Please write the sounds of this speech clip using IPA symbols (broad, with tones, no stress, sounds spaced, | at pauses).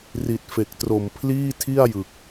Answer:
r i˨˩ t̚ f e˨˩ k̚ t r o˨˩ m pʰ l iː˥˩ tʰ i˥˩ a̯ j ɯ˨˩ k̚